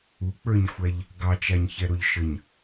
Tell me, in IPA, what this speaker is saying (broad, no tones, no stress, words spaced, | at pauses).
uk͡pə˞ɲxʷæʎ | ɡɑt͡ʃaɲçɛɾoʎ ʃəɲ